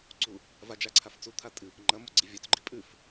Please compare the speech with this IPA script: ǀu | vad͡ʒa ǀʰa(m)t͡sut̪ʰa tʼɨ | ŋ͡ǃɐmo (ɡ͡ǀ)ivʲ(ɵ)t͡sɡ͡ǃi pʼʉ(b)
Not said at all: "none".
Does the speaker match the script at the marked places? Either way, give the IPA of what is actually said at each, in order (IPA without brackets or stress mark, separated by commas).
f, ɡ͡ǀ, ɵ, f